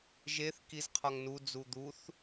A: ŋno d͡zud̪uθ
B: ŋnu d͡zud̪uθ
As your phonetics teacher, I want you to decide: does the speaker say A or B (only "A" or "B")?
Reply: B